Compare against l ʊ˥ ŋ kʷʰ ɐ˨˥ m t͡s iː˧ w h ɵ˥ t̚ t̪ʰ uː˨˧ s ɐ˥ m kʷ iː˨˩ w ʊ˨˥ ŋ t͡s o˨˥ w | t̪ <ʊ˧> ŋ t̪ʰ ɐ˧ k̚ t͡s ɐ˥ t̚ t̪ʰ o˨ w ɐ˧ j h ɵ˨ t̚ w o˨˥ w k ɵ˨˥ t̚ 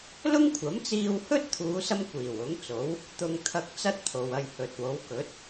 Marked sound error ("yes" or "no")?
no